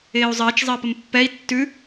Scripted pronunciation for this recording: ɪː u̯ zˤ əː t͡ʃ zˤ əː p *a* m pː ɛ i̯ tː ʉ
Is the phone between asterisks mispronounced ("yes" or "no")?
yes